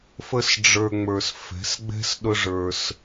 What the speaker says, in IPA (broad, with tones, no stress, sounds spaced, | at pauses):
f ə˦ s ɖ͡ʐ ə˞˧ ŋ͡m ə˞˨ s f ɛ̤˨˦ s ɡ͡b ɛ̤˦ s ɗ ʊ˦ ʐ ə˞˧ s